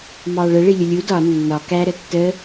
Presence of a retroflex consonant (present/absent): present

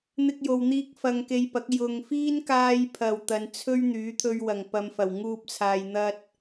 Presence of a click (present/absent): absent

